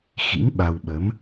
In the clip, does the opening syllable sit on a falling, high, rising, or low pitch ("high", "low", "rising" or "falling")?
rising